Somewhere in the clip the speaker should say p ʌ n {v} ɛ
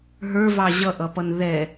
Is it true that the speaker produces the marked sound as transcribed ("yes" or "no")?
no